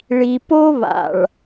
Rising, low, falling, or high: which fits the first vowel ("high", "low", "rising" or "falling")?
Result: low